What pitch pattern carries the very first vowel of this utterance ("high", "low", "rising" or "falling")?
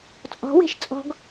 rising